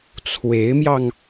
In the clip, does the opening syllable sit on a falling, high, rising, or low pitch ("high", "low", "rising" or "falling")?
rising